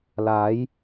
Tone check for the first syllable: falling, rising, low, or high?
rising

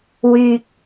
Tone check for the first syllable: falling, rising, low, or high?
low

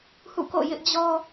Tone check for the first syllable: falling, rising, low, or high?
falling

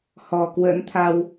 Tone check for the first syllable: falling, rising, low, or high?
low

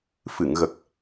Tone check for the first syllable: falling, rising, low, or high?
low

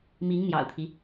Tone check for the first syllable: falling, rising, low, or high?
rising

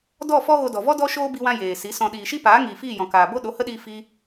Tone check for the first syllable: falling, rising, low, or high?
falling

